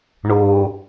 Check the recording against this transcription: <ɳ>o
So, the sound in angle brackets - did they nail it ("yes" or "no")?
yes